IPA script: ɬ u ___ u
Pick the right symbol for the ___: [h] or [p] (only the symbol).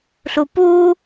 p